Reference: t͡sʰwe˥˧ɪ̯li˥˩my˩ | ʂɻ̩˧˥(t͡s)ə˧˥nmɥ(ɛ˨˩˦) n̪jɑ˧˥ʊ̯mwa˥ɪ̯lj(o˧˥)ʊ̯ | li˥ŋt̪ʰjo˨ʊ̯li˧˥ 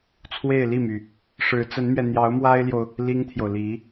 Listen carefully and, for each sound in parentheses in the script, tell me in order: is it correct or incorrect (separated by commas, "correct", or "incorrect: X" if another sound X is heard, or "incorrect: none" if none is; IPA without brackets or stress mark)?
correct, incorrect: ɛ˧, incorrect: o˨